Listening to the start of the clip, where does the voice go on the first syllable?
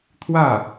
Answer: falling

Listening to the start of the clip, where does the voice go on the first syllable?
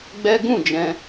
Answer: high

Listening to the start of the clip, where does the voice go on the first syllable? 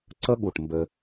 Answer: high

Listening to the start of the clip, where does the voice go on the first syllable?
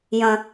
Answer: low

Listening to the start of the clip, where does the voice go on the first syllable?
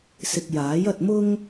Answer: low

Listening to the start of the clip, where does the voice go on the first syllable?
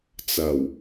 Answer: low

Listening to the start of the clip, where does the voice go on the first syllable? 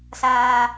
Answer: low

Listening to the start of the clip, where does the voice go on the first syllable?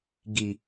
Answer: low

